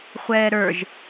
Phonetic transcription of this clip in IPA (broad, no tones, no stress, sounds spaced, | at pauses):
χʷ ɛː ɾ ə˞ ʒ